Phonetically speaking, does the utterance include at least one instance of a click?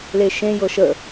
no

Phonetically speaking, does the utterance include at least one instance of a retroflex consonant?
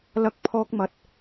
no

